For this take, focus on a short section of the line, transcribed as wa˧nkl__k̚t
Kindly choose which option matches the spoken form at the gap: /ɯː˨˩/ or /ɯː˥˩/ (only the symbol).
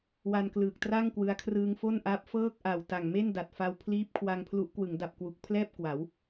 ɯː˨˩